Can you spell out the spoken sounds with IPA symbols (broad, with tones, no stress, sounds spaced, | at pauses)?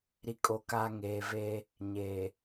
ɾ i˨ kʼ o˨ k a˨ ŋ eː˨ v eː˦ | ɲ eː˨